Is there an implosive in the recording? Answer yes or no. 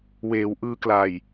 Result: no